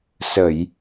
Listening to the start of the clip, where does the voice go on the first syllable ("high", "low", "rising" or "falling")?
low